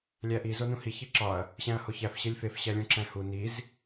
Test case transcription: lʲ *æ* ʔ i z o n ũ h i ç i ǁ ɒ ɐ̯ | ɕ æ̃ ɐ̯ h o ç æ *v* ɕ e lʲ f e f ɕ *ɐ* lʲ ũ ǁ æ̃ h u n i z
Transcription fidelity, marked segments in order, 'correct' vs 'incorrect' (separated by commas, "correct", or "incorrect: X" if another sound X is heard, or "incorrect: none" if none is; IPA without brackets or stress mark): correct, incorrect: f, incorrect: æ